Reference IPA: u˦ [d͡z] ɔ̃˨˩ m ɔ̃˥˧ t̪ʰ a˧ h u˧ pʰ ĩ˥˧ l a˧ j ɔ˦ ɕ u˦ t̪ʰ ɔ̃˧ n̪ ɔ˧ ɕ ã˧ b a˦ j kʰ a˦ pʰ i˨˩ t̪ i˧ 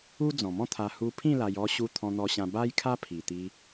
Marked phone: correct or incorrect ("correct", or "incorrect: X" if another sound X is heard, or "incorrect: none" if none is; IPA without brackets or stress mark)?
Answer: correct